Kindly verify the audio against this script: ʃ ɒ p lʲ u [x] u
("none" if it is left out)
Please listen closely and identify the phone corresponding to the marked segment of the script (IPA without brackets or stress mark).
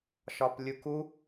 k